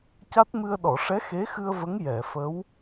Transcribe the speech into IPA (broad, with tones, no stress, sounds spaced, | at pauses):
c a˦˥ t̚ m ɨ˧ ə̯ ɗ ɔ˨˩˨ ʂ ɛ˧˥ x e˧˥ x ɨ˧ ə̯ v ə˧˥ ŋ j ɛ˨˩˨ f ə˧˥ w